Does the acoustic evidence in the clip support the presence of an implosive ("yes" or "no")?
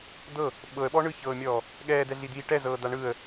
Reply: yes